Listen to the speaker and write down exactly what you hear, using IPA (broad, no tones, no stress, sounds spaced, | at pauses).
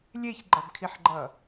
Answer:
lʲ e ç ɡ͡ǃ ʌ b kʰ i ħ ɡ͡ǃ ʌ